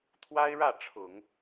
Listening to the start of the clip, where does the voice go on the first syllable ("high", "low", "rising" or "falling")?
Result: high